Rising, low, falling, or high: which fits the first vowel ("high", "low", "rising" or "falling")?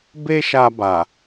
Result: high